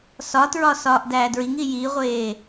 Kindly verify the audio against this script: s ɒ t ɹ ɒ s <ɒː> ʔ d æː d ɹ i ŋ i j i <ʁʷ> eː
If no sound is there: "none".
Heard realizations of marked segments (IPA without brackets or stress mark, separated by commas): ɒː, ʁʷ